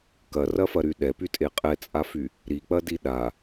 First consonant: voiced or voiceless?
voiceless